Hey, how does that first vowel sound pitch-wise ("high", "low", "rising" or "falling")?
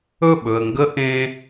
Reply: falling